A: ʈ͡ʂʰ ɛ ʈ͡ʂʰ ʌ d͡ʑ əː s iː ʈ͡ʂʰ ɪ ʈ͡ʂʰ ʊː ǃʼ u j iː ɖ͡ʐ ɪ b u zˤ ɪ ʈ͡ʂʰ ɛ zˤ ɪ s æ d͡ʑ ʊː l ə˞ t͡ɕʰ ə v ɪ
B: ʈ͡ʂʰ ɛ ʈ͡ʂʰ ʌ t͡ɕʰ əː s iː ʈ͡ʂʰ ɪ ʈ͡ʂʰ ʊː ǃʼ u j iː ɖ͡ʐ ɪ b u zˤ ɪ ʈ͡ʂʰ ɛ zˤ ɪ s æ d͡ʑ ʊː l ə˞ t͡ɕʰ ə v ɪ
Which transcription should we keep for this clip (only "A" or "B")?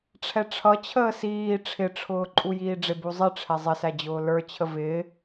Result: B